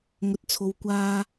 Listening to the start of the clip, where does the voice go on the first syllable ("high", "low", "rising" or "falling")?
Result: low